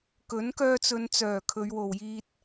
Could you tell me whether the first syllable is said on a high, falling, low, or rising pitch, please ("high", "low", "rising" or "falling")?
rising